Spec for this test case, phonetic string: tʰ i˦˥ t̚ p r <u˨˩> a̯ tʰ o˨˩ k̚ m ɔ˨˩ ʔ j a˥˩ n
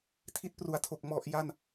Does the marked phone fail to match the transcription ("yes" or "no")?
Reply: no